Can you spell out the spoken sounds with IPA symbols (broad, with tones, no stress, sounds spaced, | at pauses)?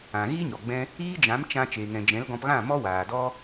ã˨ ɣ i˦ ɲ ɔ˨ ɡ͡b ɛ̃˦ | iː˦ d͡ʒ ã˨˦ m t͡ʃ ã˧ t͡ʃ eː˨ ŋ ɛ̃˨ d͡ʒ ɛ̃˨˦ l ɡ ɔ̃˧ p ɣ ã˦˨ m ɔ˦ w aː˨ d ɔ˦